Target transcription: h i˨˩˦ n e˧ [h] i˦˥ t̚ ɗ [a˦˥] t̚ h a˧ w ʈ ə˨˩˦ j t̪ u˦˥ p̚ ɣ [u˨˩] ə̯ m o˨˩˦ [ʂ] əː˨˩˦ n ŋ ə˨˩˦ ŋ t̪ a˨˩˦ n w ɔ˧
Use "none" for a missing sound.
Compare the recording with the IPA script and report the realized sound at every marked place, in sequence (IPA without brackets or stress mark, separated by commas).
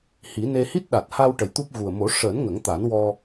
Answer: h, a˨˩, u˨˩, ʂ